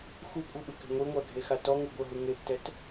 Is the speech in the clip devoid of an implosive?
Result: no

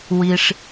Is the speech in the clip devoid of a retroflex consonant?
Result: no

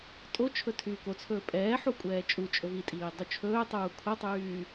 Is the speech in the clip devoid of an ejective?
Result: no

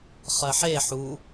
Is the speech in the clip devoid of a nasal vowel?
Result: yes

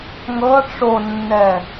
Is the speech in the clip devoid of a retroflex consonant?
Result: no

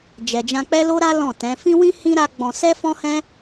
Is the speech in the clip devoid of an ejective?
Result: yes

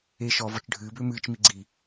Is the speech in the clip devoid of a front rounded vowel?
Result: no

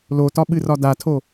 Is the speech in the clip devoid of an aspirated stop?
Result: no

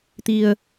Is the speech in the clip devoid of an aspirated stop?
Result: yes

